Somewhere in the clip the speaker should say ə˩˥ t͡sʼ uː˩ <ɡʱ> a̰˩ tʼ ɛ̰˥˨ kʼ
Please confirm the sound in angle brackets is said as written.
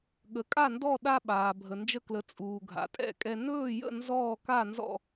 yes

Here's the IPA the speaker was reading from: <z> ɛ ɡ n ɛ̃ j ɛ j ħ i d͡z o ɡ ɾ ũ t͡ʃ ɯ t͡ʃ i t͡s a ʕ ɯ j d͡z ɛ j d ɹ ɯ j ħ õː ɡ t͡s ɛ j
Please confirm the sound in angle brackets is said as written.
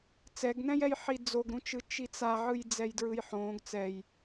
no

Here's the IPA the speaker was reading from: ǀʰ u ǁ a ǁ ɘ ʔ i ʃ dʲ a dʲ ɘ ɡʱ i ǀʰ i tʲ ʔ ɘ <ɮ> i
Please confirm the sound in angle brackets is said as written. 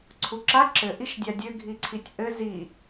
no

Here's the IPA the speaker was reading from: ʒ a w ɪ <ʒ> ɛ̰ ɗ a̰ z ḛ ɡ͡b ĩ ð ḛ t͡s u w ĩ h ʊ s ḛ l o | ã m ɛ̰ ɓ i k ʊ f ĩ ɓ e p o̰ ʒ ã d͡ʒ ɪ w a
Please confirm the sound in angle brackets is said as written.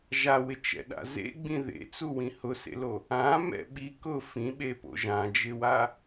no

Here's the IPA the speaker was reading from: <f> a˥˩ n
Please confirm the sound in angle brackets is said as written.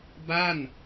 no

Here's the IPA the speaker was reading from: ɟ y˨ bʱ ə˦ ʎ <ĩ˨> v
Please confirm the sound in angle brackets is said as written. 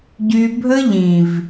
yes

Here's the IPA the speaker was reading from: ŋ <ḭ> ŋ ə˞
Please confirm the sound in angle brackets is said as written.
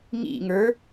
yes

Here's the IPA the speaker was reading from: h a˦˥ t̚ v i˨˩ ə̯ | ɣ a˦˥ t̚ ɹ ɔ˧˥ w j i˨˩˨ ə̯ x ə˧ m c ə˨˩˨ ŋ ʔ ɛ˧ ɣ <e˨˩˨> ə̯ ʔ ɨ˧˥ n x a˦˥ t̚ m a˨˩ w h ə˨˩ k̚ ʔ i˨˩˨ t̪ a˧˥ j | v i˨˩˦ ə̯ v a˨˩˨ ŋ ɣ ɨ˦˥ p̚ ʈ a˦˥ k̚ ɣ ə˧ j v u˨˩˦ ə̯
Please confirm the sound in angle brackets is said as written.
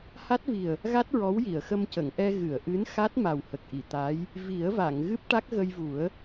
no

